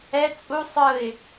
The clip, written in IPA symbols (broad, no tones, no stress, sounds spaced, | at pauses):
ɛ t͡sʼ u sˤ ɯ ɪ̯